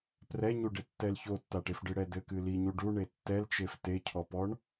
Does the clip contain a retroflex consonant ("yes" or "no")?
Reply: yes